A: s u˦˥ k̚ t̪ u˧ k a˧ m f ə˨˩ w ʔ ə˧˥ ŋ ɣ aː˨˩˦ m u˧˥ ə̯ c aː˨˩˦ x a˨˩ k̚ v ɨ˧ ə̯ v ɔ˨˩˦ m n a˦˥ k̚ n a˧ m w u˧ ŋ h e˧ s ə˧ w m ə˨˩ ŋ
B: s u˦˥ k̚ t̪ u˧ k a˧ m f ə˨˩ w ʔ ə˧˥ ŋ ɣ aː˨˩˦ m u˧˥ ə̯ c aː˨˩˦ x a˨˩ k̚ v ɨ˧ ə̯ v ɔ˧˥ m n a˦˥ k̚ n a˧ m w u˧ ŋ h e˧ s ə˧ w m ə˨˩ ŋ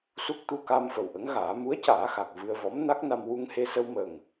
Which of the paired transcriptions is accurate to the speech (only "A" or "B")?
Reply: B